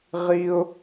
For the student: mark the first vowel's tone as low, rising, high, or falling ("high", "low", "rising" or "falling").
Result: high